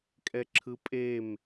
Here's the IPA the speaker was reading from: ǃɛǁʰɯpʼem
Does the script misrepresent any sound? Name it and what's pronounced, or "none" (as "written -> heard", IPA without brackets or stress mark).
ǃ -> kʼ